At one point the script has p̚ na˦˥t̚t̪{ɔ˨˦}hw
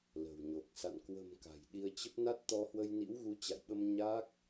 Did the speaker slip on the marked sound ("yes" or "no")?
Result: yes